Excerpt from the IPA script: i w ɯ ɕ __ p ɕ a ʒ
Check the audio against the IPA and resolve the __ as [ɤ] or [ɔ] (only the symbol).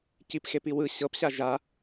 ɤ